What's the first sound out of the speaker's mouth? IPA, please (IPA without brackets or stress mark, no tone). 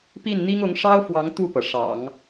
p